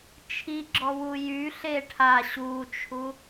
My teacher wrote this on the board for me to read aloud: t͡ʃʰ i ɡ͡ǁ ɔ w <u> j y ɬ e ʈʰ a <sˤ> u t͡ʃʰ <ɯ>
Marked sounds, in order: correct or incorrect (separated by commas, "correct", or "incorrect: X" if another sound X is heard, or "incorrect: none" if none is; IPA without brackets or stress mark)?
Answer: correct, incorrect: ɕ, incorrect: u